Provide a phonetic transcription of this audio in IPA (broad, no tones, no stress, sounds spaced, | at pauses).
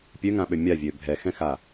pʲ ø ŋ ã ɓ ø mʲ a vʲ ø bʱ ɛ x ɛ̃ x a